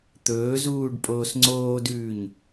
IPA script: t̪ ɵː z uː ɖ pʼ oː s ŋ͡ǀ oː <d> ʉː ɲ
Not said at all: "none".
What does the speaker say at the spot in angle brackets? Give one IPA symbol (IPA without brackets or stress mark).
d